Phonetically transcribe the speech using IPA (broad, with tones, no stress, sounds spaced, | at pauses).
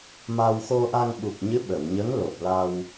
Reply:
m a˧ w x o˧ ʔ a˧ ŋ ɓ u˨˩ k̚ ɲ ɨ˧˥ ɓ ə˨˩˨ w ɲ ə˧˥ ŋ l o˨˩ p̚ l a˧ w